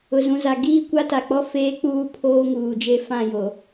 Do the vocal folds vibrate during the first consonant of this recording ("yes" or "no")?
yes